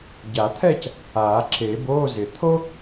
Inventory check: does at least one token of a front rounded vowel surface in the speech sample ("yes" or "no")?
no